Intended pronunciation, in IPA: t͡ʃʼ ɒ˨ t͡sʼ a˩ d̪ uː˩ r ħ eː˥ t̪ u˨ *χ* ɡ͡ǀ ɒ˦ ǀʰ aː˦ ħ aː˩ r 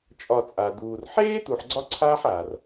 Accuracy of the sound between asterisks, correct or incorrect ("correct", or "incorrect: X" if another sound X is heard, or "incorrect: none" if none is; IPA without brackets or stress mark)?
incorrect: ħ